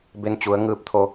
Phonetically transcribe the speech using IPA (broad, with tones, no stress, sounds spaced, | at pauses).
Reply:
b e˧˥ n t͡ɕ u˩˧ ə̯ ŋ ɯː˧˥ p̚ t̪ʰ o˧